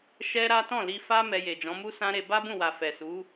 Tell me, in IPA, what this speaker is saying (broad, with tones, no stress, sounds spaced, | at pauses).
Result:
ʃ ɛ˦ ɾ a˦ t ɔ̃˦˨ l i˧ f a˦ m ɛ˧ j e˨ d͡ʒ ɔ̃˨˦ m u˦ s ã˦ ɾ e˧ b a˦ b ũ˦˨ w a˨ f ɛ˨ s u˨˦